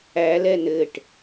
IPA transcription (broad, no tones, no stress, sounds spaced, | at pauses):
æ l ɛ n ɘ ʈ